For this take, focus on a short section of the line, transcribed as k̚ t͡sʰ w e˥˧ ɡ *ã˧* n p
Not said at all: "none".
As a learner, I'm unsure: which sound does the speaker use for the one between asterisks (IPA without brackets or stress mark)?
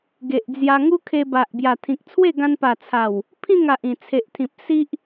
ã˧